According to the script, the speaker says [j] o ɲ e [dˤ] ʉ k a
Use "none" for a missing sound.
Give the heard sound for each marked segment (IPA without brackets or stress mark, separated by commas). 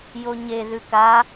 j, ð